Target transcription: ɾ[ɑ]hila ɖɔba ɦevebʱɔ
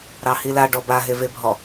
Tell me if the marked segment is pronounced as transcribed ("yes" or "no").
yes